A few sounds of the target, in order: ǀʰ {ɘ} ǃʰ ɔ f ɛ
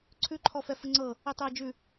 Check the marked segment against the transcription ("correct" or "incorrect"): incorrect